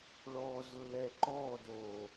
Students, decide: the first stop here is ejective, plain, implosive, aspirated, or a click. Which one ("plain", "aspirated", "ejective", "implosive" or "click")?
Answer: click